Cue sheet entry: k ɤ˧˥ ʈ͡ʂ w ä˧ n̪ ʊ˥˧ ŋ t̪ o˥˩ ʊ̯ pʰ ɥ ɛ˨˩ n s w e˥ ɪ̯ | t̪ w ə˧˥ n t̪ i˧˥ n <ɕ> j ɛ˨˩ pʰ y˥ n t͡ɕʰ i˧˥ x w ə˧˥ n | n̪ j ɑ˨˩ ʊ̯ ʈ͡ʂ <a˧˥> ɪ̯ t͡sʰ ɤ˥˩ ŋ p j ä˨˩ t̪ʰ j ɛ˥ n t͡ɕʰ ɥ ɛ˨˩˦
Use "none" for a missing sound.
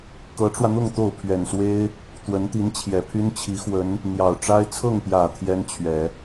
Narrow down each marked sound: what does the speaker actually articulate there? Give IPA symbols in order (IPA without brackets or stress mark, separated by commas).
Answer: t͡ɕʰ, a˥